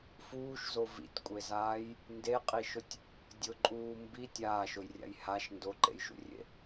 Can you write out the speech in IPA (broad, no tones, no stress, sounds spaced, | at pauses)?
f uː ʃ z o v ḭ tʲ kʷʼ e z aː j | n d e qʼ i ʃ ʊ tʲ | dʲ ʊ ǃʼ uː m b i tʲ aː ʃ ʊ j rʲ a̰ j h a ʃ n d o ǃ ḛ j ʃ ṵ rʲ ḛ